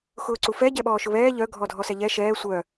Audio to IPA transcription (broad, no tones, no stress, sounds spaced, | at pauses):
x ʊː ǀ u f ɛ ɟ ɛ ɓ ɔː ʃ ʊ β ɛː ʎ œ ɡʱ ɔ dʱ ɔ s ɛ ʎ ɛ ʃ ɛː sʷ œ